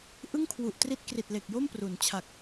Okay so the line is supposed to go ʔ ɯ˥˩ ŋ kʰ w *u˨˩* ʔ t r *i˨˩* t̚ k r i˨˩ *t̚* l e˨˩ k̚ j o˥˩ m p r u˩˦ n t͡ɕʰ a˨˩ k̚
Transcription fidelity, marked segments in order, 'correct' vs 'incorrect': correct, incorrect: i˦˥, correct

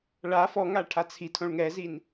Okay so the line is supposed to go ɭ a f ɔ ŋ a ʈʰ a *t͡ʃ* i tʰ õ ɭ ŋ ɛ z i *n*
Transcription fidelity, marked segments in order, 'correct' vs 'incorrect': incorrect: t͡sʰ, correct

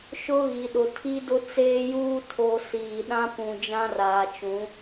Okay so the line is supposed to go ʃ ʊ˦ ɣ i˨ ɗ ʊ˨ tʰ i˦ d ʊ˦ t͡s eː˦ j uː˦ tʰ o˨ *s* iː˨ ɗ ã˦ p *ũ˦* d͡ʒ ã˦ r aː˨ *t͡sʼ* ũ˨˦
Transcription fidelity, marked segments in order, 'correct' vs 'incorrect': correct, incorrect: ũ˨, incorrect: t͡ʃ

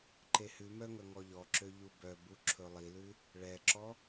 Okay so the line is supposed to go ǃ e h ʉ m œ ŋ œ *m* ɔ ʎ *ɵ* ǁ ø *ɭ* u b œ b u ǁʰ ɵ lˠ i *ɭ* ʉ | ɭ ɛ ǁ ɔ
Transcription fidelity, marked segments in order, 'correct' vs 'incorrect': incorrect: ŋ, incorrect: ɔ, incorrect: ʎ, incorrect: l

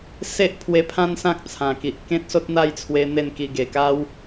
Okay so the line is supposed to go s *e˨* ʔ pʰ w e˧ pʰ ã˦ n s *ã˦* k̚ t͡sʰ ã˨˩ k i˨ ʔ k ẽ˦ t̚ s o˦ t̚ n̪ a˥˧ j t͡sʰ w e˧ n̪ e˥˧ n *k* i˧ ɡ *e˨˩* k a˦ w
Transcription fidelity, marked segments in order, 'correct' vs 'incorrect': incorrect: e˦, correct, correct, correct

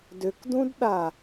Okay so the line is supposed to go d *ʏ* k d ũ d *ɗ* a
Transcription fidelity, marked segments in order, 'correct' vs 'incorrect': correct, correct

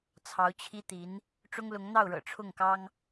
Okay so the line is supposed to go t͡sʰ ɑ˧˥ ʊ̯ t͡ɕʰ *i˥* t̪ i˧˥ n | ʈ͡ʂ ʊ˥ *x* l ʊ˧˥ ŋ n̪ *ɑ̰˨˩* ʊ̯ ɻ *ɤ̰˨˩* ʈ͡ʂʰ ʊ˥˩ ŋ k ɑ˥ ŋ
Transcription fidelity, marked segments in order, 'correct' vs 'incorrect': correct, incorrect: ŋ, incorrect: ɑ˥˩, correct

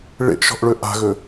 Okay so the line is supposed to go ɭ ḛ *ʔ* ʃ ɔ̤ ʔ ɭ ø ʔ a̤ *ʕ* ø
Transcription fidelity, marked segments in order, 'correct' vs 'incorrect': correct, incorrect: ɣ

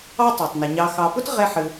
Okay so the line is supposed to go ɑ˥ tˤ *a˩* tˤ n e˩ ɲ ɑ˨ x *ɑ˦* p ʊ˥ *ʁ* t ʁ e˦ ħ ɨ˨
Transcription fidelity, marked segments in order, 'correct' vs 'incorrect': correct, incorrect: ɑ˨, incorrect: none

